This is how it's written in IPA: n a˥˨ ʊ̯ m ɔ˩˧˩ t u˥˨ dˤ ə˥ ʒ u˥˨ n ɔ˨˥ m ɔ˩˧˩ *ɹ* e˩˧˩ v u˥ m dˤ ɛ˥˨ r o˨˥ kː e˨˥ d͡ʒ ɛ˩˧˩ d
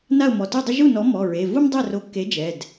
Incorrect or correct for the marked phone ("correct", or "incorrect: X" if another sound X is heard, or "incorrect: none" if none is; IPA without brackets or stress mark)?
correct